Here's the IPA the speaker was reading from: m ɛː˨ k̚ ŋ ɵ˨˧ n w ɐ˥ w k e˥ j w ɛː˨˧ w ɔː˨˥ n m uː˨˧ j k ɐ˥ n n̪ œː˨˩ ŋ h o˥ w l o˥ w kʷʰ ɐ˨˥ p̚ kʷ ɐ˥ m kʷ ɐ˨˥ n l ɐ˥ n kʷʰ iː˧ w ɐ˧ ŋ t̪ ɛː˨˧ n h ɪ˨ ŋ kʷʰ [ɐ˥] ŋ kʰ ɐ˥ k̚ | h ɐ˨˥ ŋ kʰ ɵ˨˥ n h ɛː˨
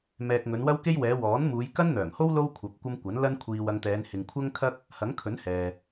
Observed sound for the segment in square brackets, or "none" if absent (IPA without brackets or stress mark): ɐ˥